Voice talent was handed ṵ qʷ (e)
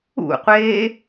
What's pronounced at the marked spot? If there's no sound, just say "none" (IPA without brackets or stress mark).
eː